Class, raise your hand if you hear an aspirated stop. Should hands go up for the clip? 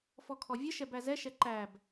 yes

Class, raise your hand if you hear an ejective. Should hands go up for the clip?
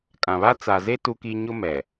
yes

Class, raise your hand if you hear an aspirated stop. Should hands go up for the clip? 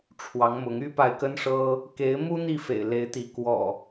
yes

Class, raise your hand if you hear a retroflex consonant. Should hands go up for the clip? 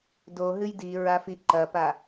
no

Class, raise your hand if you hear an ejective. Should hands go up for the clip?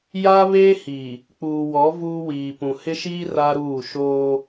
no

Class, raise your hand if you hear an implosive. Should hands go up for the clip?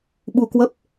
yes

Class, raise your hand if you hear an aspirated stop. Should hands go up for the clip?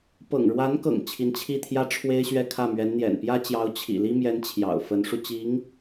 yes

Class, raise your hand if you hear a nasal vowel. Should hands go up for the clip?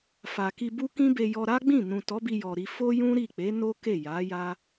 yes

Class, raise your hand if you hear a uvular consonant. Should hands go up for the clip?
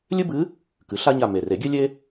no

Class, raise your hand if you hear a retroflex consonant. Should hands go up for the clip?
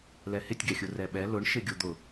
yes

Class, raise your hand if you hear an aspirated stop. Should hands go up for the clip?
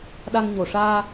no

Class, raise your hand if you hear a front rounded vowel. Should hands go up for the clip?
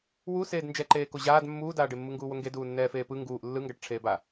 no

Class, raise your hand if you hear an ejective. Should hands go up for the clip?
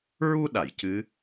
no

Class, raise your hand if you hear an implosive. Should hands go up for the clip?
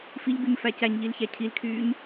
no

